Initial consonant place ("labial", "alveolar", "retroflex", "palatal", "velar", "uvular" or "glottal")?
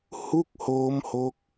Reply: glottal